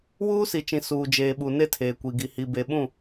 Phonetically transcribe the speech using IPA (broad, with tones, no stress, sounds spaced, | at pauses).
w uː˦ s i˨ t͡ʃ ĩ˨ s uː˨ d͡ʒ eː˨ ɓ u˨ n e˦ tʰ eː˨ kʷ i˨ ɡ i˨ h i˨ b e˨ ɓ ũ˦˨